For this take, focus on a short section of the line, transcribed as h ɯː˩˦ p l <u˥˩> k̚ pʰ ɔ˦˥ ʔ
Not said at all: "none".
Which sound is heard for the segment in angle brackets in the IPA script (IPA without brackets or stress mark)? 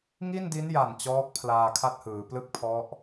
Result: ɯ˥˩